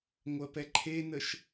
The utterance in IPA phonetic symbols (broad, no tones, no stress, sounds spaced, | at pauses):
ŋʷ ɜ p ɛ ǃʰ e n ə ʃ